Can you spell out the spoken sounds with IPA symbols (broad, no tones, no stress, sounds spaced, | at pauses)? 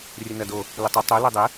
rʲ ə n ɐ d o | l ə tˤ ə tˤ o l ɛ dˤ ə